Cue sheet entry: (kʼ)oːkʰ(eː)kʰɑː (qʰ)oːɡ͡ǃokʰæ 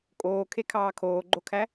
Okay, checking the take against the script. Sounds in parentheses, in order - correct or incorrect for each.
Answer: correct, incorrect: e, incorrect: kʰ

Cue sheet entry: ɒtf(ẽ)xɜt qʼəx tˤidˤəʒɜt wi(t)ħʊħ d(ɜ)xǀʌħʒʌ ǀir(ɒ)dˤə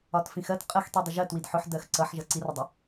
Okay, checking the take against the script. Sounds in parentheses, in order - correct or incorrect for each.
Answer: incorrect: ĩ, incorrect: d, correct, incorrect: ʌ

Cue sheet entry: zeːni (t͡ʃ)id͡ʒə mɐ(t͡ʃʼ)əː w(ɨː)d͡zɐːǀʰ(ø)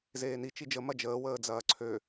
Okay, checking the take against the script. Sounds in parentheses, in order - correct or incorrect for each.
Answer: correct, incorrect: d͡ʒ, incorrect: əː, correct

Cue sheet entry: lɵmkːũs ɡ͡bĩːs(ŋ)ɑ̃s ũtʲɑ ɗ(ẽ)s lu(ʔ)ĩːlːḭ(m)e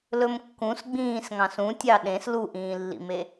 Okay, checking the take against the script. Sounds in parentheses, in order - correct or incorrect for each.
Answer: correct, correct, correct, correct

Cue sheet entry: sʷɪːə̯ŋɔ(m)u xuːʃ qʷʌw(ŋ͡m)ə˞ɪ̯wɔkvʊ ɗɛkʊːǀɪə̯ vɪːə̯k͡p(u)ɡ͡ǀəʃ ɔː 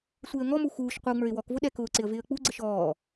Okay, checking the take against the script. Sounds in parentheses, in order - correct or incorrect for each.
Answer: correct, correct, correct

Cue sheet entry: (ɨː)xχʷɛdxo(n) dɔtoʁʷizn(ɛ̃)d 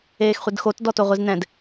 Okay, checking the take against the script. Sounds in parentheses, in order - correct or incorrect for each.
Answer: incorrect: eː, incorrect: t, correct

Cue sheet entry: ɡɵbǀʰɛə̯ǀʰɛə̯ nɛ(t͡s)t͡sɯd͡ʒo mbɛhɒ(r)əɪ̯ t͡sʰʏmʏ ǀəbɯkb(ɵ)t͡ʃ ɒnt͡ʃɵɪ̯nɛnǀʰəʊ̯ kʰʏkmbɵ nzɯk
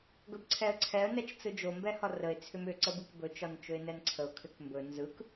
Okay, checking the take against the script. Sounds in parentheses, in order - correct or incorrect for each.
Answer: incorrect: t͡ʃ, correct, correct

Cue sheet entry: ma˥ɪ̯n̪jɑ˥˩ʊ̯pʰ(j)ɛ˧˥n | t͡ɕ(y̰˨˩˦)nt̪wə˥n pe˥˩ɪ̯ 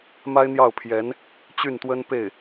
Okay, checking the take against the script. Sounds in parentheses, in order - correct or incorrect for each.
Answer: correct, incorrect: y˥˩

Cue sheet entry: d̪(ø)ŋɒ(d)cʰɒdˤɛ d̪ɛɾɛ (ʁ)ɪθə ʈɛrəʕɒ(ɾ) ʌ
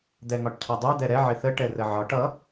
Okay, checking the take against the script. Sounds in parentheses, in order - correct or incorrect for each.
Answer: incorrect: ɛ, incorrect: ʈ, incorrect: ʕ, incorrect: ʈ

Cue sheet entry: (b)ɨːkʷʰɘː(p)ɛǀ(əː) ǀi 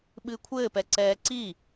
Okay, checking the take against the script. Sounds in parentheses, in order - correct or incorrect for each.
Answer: incorrect: ɓ, correct, incorrect: ɛː

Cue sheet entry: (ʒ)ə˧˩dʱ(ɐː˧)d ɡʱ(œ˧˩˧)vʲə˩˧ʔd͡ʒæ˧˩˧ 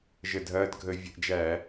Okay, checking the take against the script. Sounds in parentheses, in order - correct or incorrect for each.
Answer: correct, correct, incorrect: ə˧˩˧

